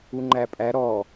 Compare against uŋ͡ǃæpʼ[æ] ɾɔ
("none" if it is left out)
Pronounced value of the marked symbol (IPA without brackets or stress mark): æ